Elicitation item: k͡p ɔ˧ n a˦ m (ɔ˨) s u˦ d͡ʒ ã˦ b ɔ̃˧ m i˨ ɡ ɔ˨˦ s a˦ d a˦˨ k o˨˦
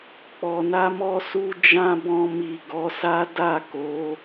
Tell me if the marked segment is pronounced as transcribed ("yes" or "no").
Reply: no